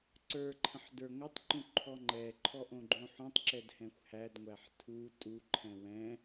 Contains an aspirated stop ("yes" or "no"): yes